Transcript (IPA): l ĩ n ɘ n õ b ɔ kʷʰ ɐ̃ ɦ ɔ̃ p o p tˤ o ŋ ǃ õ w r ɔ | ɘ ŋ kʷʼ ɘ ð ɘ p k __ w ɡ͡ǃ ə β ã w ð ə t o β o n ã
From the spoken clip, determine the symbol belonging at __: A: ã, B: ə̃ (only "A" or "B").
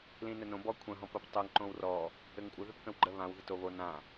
B